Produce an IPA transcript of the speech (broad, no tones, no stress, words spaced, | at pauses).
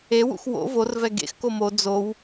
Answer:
ewṵx wo̰ vorvɛ ɡḛx komo d͡zow